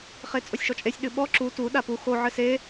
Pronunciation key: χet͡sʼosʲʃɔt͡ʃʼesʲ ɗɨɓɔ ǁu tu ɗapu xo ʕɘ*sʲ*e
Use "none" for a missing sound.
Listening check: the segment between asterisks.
s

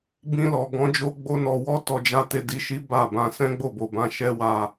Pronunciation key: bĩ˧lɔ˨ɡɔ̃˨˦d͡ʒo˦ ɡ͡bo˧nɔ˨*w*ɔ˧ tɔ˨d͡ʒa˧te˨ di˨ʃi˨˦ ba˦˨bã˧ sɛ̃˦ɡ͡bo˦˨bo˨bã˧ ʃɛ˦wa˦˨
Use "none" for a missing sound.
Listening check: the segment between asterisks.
w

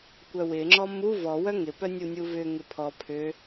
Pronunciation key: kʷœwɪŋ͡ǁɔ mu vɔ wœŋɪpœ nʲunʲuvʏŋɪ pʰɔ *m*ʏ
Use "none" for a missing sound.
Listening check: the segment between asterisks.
pʰ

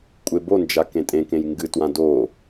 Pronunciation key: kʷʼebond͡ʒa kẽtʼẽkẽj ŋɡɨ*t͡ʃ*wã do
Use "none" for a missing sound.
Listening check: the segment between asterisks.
t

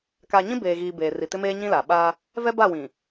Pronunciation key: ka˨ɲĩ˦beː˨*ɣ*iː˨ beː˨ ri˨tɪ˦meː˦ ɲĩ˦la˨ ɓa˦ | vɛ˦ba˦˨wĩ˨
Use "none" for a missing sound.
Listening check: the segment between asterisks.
ɣ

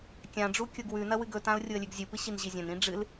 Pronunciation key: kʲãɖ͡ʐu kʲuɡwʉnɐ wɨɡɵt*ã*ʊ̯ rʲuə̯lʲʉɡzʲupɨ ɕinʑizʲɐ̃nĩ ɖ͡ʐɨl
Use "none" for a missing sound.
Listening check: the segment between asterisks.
ã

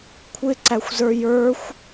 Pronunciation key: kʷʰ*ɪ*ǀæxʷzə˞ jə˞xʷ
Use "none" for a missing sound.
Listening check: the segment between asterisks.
ɪ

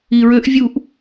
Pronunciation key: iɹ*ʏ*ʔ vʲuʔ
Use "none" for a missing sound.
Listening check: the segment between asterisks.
ʏ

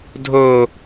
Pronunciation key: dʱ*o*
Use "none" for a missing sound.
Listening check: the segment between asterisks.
o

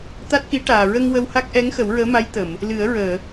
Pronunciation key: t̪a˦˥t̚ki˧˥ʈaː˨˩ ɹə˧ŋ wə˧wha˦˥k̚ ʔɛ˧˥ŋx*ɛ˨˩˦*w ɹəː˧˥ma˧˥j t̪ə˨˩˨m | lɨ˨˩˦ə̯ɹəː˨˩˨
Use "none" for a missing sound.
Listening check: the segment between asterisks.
ə˨˩˦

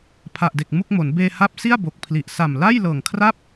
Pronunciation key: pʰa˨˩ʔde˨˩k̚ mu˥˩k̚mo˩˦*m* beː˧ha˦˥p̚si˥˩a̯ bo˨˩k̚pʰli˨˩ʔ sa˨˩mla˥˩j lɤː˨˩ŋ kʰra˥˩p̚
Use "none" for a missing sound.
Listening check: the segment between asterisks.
n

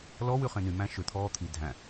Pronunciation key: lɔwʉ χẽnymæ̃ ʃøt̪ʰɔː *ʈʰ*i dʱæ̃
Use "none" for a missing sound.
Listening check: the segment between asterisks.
t̪ʰ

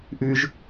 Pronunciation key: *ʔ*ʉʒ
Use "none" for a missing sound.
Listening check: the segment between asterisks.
ʔ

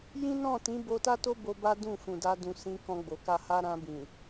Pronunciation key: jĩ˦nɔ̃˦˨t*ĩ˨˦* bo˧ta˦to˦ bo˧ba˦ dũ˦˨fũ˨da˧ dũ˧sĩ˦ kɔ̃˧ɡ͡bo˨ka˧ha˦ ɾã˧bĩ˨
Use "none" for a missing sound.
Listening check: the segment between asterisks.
ĩ˨˦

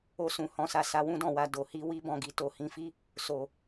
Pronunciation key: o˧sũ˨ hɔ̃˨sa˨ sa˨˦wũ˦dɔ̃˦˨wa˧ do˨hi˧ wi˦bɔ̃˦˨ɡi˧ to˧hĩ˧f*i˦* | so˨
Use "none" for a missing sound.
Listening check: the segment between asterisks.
i˦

